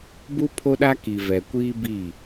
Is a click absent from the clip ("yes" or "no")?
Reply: yes